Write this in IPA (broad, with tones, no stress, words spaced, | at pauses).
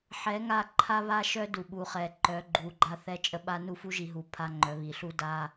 ħɛ˨˦ŋa˦˨ ǃʰa˦βa˦ʃœ˦ du˨ɓu˨χɛ˨ ǃœ˨˦ ɡ͡ǃu˨ɡ͡ǃa˦ θɛ˦t͡ʃʼə˦ɓa˦ nu˦˨fu˦ʒi˨ ɦu˨pʰa˦ ŋ͡ǃœ˨˦βi˨ɬu˦ da˦